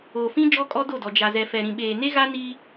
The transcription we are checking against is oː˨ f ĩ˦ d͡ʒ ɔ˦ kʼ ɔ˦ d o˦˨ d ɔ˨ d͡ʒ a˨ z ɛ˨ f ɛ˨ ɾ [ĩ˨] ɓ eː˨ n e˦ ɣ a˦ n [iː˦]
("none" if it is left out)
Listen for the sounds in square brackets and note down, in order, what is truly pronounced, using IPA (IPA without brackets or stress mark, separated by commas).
ĩ˨, iː˦